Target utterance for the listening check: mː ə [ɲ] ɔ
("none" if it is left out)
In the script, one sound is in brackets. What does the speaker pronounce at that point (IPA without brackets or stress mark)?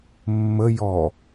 j